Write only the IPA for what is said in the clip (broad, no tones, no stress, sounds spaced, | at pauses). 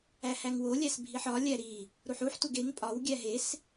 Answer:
æ h æ ŋ w o lʲ æ s bʱ i ħ ɒ lʲ æ ɾ i | ɾ u ħ u ħ t u ɡ e ŋ pʼ ɒ w ɡʲ æ ɦ e s